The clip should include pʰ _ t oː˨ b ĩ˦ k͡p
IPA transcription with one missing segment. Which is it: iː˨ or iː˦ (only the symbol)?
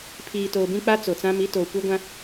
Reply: iː˨